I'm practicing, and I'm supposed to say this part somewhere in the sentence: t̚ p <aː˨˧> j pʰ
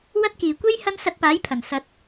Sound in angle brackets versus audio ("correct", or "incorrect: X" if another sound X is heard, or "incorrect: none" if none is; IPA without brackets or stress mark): incorrect: aː˨˥